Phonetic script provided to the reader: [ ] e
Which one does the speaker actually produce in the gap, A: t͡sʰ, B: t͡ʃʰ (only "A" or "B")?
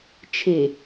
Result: B